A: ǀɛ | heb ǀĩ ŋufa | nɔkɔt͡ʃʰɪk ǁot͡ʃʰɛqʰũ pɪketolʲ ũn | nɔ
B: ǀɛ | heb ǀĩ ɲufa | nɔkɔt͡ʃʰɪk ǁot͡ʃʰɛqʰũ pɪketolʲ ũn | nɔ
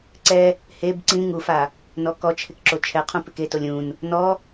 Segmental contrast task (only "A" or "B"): A